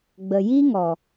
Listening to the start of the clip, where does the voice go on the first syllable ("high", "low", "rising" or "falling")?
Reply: low